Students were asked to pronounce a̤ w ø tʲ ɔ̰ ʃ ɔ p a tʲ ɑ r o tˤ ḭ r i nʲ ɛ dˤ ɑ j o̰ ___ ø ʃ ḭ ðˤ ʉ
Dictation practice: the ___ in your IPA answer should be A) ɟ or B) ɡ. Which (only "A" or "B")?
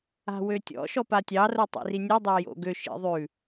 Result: B